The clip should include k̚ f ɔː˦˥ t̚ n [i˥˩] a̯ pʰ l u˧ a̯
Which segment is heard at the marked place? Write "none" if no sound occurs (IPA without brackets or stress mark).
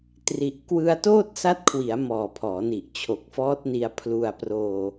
i˧